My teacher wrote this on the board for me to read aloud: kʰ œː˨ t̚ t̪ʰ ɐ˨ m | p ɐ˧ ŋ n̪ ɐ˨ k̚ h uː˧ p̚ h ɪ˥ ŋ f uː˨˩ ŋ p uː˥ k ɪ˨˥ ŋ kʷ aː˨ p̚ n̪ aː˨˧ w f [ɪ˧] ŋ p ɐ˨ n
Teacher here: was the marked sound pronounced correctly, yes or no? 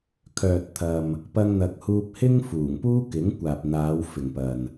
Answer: no